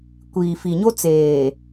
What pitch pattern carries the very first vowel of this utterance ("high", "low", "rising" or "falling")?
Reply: low